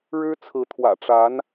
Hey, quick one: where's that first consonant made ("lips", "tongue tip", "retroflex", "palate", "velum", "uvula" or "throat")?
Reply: retroflex